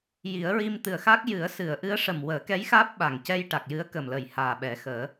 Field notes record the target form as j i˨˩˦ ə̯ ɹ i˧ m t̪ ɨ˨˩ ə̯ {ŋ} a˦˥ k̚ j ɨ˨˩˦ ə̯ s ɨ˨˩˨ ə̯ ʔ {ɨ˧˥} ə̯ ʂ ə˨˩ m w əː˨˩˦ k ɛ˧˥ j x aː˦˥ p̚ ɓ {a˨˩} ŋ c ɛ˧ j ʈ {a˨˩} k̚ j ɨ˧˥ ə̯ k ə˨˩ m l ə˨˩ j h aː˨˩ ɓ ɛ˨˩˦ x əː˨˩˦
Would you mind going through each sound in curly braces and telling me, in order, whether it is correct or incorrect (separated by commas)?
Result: incorrect, correct, correct, correct